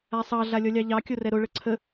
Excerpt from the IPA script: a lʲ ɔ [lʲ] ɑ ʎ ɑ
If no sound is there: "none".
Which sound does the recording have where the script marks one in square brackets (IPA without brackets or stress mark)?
lʲ